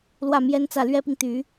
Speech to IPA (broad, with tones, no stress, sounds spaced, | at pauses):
l w ä˥˩ m j ɛ˥ n t͡s ä˥˩ l ɥ ɛ˥ p i˨ ŋ t̪ y˧˥